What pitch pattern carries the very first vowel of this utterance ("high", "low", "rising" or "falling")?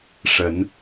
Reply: rising